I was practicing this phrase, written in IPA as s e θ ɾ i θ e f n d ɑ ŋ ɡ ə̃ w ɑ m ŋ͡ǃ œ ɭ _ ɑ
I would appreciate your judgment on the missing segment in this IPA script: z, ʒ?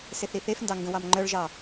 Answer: ʒ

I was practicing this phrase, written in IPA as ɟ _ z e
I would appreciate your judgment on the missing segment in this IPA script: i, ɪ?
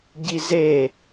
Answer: i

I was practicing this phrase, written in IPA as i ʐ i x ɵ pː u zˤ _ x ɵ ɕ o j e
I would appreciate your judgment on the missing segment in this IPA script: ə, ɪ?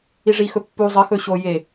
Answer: ə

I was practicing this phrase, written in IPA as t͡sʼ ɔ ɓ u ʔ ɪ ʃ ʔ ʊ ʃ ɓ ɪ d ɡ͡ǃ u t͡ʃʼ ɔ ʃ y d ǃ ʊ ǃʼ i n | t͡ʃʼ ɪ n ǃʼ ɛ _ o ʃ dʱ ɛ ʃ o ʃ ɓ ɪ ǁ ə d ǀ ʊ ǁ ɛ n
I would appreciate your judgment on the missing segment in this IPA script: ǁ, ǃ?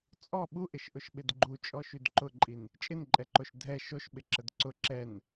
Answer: ǃ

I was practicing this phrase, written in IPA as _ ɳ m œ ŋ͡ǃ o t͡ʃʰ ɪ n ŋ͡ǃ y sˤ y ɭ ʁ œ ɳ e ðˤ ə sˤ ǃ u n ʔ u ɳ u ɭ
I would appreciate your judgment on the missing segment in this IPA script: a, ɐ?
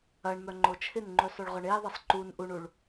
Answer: ɐ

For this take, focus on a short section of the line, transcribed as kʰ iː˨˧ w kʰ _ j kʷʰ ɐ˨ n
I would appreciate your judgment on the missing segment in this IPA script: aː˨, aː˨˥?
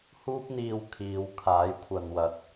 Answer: aː˨˥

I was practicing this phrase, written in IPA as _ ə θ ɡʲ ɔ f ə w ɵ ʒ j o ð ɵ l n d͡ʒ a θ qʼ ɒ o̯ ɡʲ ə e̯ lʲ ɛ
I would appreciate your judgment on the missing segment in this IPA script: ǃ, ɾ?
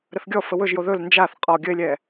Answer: ɾ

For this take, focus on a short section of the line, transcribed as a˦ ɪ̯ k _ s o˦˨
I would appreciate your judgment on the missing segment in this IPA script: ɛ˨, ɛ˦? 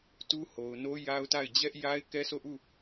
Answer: ɛ˦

